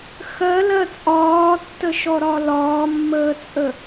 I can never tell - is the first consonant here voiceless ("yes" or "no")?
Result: yes